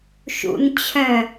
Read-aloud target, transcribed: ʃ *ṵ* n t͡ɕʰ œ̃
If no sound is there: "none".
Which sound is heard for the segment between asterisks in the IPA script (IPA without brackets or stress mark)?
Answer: ṵ